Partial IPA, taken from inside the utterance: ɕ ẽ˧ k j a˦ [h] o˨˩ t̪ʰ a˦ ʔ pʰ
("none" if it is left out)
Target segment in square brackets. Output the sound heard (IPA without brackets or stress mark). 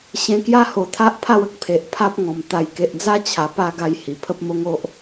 h